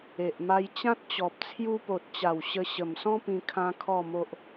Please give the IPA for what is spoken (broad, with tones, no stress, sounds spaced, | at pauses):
e˨ ʔ m a˧ j t͡ɕ ã˦ t̚ t͡ɕ ɔ˨ p̚ t͡sʰ j u˧ p o˨ t̚ t͡ɕ a˨˩ w ɕ ə˧ ɕ ə˨˩ m s ɔ̃˦ p ĩ˧ kʰ ã˦ kʰ ɔ˥˧ m o˦ ʔ